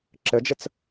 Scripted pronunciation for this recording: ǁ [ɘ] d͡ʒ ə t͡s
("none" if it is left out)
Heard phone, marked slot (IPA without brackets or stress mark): ɘ